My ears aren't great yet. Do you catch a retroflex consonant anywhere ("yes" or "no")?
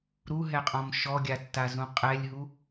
no